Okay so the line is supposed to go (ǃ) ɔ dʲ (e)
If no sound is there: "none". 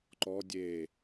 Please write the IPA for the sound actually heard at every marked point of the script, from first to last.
ǃ, e

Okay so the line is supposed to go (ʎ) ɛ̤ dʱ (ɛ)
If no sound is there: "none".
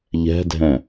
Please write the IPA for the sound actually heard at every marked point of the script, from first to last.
ʎ, ɛ̃

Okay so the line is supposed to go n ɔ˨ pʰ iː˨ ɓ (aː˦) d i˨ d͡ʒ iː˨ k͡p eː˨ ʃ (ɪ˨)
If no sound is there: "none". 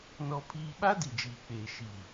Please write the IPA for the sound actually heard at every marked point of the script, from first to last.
a˦, i˨

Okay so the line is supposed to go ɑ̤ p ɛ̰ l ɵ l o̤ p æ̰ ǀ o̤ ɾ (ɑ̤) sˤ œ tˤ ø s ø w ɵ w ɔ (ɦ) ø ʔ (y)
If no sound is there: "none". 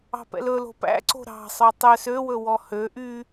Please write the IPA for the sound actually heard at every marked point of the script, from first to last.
ɑ̤, h, y

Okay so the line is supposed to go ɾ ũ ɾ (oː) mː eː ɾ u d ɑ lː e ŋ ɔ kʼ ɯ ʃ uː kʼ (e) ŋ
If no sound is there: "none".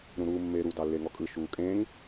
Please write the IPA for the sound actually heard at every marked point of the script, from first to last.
uː, ẽ

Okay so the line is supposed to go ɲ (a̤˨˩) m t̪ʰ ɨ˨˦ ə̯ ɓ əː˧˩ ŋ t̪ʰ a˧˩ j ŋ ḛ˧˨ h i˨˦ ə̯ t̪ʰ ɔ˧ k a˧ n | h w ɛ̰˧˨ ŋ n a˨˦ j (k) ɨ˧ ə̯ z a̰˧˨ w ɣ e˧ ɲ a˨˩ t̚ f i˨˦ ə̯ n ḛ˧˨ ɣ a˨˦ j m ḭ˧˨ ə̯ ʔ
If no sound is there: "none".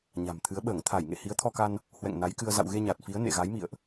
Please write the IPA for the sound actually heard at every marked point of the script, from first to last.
a̤˨˩, k

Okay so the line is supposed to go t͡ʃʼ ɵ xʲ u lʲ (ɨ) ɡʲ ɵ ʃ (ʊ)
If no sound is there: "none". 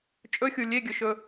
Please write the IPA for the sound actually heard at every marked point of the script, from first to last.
e, ɵ

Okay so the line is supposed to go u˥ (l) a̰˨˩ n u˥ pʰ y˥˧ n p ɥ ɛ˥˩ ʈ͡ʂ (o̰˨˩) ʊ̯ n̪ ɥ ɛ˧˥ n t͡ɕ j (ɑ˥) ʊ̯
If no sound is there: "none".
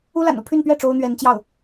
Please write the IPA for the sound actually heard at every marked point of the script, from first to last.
l, o˥, ɑ˥˩

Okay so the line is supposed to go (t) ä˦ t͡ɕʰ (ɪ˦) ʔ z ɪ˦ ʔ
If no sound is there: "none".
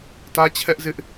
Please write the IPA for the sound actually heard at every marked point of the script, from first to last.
t, ɛ˦

